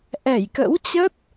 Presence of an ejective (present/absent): absent